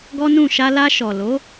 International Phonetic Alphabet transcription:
ɡɔ˦nũ˦˨ ʃa˧la˧ ʃɔ˨lo˨˦

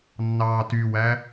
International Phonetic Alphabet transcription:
nːɑːtywæ

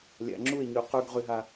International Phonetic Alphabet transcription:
lʲa̰˧ŋ͡ǁu˥˧e̯ɲy˧ qy˧ɡ ʁy˧ɦa˧

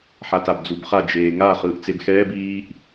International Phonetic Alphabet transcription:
ħatabd͡zubχa d͡ʒeːŋa χɯːʔt͡sebxɛːb iːʔ

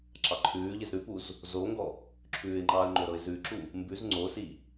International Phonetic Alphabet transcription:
ǁɑǃʰʉːʎɪz ɾʉpuz | zoŋɡɔ | ǁʰʉːɪ̯ŋ͡ǃɑːə̯ ŋ͡ǃoɾɤɪ̯zʉǁu | mbʉz ŋ͡ǀosi

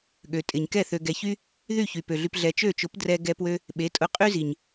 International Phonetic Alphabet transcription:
ɠø˨tʼɪ˨ɲ kɛ˦˨θø˨ ɡɛ˨çy˦ | ðy˦˨ çy˨pø˨ɮy˧p ɮɛ˨t͡ʃø˦˨t͡ʃʊ˨˦p drɛ˦ ɡɛ˧pwø˧ | ɓe˨˦tʼʊ˧qʼy˦zi˨ɲ

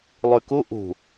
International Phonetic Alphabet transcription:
lˠʉku ʔṳ

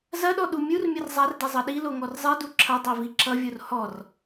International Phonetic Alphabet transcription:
zɐɗɔ ɗumʲurmʲʌr zˤardɛ zˤʌɗilo ŋɔrzˤɛdu ǁʰɐdˤɛ viǁʌvʲor hɔr

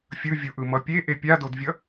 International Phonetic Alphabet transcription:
fʲɯvʲuʔɯ mʌpʲe ʔepʲadodvʲʌ

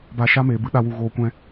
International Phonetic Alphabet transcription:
ba˧ʃa˦meː˨ bɨ˧ɗa˧wu˨ ɣoː˧kʷɛ̃˦

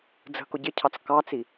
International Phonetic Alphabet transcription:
d͡zə̤kʊ ɟɪcʰɑt͡s kɑt͡si

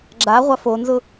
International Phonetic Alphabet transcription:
ɡ͡ǁaʁʷa fonzʊ

